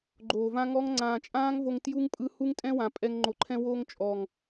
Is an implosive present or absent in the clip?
absent